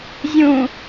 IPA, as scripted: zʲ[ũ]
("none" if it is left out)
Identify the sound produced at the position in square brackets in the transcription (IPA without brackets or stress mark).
ũ